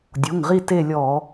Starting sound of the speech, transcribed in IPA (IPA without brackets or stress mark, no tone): dʲ